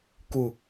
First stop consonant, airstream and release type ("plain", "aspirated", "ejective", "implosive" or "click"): plain